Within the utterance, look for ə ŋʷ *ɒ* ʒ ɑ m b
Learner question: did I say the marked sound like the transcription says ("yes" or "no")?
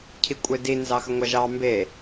no